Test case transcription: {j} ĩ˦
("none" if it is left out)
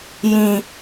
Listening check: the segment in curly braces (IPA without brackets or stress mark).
j